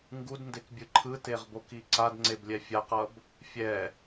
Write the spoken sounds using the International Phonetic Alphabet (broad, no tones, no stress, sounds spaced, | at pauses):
ŋ ɡ u d n d e k bʲ ɯ ǃʰ ɯ t e ʁ b o k i ǀ a d ŋ͡ǀ e b lʲ ɛ fʲ a q ʌ b | fʲ ɛ